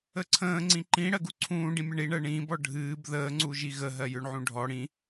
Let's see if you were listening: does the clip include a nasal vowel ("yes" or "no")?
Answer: yes